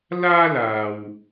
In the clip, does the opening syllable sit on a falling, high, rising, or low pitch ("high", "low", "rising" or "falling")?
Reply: high